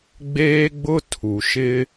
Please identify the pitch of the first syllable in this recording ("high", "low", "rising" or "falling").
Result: high